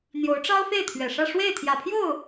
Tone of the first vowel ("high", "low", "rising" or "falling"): rising